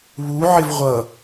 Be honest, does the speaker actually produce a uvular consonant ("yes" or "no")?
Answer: yes